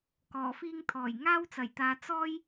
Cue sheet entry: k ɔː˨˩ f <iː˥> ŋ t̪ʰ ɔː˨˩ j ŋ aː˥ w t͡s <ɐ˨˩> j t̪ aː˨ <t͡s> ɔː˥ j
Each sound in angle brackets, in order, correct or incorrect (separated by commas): correct, correct, correct